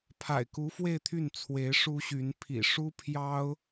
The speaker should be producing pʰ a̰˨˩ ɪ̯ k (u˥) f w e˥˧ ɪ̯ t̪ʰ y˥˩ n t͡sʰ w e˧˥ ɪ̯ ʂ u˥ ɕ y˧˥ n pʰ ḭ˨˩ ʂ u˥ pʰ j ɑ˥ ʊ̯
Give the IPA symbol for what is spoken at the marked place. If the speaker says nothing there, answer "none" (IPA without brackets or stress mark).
u˧˥